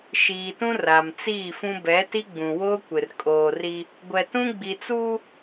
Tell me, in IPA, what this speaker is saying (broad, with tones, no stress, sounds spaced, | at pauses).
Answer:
ʃ iː˨ t ũ˦ r a˨ m t͡s iː˦˨ f ũ˦ b ɛ˨˦ t i˦ ɡ͡b ũ˨ w oː˦ kʷ ɪ˨ r kʼ oː˨ r i˦ | ɡʷ ɛ˨ t ũ˦ ɡ͡b i˨ t͡s uː˦